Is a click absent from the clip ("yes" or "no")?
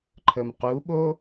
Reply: no